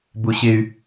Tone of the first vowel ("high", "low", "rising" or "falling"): high